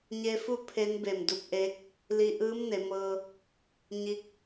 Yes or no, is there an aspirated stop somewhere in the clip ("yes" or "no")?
yes